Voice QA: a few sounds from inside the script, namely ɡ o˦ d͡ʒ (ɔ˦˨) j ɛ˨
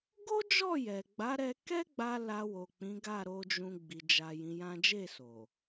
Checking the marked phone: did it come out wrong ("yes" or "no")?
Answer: no